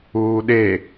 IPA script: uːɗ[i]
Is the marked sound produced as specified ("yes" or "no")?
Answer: no